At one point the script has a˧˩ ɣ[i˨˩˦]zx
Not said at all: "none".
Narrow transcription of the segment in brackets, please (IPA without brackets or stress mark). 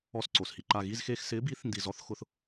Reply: i˧˥˧